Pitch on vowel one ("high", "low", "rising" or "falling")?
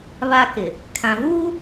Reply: high